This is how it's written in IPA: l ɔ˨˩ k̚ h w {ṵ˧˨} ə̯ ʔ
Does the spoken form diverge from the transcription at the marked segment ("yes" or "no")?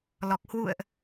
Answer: no